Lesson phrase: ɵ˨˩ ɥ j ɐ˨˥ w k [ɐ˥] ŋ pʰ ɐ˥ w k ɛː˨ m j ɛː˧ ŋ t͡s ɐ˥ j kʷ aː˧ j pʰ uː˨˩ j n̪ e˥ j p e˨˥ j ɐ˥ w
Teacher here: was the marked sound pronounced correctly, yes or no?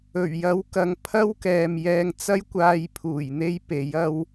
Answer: no